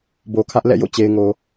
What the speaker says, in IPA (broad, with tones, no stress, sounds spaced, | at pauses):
b o˨ kʰ ä˦ ʔ l ɛ̰˦˨ j o̰˦˨ t͡ɕ e˨ ɪ̯ ŋ o˨